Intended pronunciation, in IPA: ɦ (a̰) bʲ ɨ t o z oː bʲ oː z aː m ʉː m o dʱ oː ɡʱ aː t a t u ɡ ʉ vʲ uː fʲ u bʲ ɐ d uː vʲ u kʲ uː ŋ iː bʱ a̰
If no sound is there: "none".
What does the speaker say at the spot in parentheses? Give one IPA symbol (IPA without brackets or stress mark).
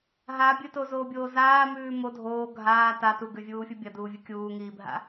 a